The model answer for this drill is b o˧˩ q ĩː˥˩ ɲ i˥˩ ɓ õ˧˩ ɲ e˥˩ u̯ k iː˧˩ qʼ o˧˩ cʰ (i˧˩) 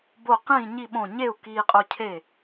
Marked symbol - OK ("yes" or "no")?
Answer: no